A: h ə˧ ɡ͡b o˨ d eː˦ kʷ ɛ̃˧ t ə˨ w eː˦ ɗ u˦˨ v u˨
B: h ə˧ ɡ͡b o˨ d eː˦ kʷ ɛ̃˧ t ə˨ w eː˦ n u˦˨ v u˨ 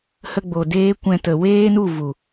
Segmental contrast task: B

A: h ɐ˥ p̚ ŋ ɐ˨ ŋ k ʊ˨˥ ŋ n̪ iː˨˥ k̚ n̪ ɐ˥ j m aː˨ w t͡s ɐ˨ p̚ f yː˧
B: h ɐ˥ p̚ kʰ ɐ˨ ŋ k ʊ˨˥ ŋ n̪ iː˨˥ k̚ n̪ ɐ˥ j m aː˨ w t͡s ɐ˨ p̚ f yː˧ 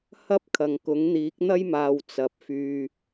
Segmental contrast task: B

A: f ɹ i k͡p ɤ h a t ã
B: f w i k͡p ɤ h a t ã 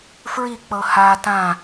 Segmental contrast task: A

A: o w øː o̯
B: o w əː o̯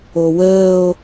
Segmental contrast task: B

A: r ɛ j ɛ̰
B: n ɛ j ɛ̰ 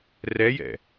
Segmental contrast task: A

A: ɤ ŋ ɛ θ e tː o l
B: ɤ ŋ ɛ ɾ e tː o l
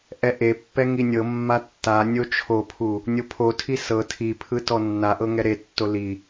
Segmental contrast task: B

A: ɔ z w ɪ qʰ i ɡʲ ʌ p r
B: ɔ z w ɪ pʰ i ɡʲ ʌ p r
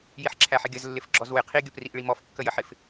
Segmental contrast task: A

